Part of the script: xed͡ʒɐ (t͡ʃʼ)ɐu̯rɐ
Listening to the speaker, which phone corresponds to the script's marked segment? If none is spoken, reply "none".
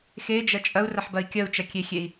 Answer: t͡ʃʼ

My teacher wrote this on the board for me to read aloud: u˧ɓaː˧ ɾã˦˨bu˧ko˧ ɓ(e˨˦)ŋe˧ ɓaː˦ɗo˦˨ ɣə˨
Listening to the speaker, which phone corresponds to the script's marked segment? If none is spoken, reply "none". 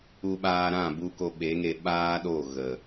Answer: e˨˦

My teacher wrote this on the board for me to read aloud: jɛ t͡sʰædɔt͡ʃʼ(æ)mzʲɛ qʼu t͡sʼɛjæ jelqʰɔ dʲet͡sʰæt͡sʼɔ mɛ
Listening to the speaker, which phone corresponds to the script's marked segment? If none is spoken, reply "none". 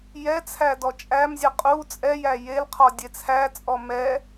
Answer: æ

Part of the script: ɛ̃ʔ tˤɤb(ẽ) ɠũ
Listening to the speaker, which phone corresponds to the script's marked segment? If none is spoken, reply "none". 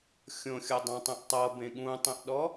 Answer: ẽ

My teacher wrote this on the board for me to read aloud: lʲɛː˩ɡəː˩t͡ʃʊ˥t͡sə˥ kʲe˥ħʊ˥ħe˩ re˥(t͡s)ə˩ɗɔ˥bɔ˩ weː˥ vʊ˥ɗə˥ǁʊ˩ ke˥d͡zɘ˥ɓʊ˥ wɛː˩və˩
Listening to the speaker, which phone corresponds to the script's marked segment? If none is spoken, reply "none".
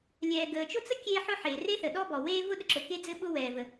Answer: θ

